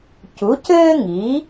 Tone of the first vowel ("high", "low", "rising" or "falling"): rising